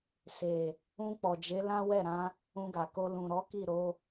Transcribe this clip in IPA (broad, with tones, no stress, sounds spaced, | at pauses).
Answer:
s e˨ | ũ˧ k͡p ɔ˨ d͡ʒ e˨˦ l ã˦ w ɛ˦˨ ɾ ã˧ | ũ˧ ɡ a˨ k o˧ l ũ˨ ɾ ɔ˨˦ k i˦˨ ɾ o˨˦